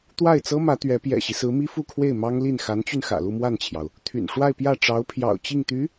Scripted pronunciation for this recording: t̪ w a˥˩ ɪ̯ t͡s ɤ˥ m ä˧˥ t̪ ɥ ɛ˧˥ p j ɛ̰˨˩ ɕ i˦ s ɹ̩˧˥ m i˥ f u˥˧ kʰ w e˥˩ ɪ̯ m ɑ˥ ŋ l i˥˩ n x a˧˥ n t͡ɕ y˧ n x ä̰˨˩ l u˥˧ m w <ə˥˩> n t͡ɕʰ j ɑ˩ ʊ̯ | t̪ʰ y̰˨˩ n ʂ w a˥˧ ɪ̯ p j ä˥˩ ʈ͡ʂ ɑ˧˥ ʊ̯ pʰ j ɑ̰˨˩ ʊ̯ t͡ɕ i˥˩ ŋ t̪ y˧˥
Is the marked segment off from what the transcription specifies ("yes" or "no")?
yes